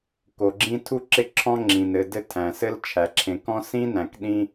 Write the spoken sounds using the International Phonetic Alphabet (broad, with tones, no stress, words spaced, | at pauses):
ko˨ɡ͡ǁĩ˦tʰu˥ǁɪ˦ ǁʰɔ̃˦ŋ͡ǁĩ˩n ɘ˨ dɘ˦tʰæ̃˩sɘ˦l t͡ʃʰæ˩ǁʰẽ˨kɔ̃˥ sĩ˥næ̃˩k ɗĩ˦